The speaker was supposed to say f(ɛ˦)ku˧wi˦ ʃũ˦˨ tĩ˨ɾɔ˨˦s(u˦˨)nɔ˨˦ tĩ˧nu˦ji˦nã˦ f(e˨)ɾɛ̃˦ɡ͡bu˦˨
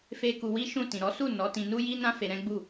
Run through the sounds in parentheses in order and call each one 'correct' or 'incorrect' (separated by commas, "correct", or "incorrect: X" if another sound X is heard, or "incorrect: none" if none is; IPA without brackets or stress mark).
incorrect: e˦, correct, incorrect: e˧